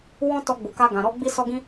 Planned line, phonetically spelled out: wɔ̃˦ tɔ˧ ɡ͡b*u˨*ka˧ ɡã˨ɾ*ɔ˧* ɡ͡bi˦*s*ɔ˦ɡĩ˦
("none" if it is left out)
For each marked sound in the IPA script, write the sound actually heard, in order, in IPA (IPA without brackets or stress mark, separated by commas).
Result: u˨, ɔ˧, s